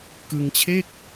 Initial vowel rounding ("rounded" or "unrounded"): unrounded